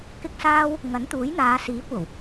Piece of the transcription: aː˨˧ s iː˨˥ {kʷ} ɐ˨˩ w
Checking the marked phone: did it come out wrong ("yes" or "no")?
no